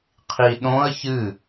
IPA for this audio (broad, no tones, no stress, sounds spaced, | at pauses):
qʰ i ɗ õ ə̯ ç ɨ